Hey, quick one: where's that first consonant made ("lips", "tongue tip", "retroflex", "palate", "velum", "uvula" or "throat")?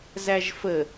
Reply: tongue tip